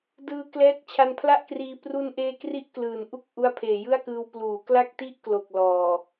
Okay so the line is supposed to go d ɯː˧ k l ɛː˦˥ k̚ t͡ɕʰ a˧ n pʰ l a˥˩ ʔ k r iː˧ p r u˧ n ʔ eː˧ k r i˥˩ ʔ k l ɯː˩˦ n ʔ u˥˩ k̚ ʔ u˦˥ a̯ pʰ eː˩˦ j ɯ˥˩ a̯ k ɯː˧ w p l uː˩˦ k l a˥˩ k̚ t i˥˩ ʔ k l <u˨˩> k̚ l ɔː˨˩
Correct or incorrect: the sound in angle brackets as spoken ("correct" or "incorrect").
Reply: incorrect